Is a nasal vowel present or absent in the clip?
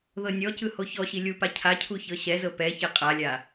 absent